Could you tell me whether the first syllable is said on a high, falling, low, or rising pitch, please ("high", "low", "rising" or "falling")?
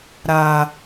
low